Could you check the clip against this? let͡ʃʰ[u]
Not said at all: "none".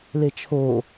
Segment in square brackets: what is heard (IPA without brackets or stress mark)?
o